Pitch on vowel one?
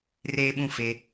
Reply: high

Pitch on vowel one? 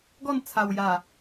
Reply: falling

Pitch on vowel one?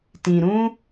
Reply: low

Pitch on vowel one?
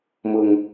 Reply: low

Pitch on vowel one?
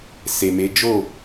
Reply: low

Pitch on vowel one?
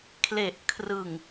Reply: low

